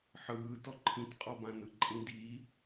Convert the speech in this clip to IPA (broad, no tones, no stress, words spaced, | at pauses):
ħɯːtɔ ǃʰĩtqʼɔbãnɯ ǃʼĩdi